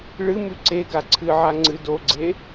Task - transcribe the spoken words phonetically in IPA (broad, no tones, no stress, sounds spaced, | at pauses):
ɭ ɨ m ʉ ǀ e ɡ a ǀʰ ɨ ʕ a ŋ͡ǀ ɨ d o ɡ͡ǀ e